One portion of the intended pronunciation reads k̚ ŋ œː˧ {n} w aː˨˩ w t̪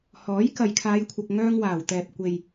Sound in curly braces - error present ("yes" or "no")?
yes